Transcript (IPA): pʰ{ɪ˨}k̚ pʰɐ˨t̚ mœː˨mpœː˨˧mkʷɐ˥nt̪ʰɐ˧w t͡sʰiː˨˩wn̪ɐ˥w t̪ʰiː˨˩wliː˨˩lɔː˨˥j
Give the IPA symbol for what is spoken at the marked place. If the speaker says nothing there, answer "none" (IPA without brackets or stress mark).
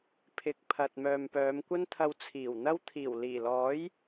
ɪ˨